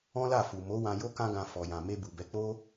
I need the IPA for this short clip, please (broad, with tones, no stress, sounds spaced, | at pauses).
ɔ̃˦ l a˦˨ f u˨ m o˨˦ w ã˧ j o˦ k ã˦ ɡ ã˧ f ɔ˧ j ã˧ m e˧ b u˨ b ɛ˨˦ k͡p o˦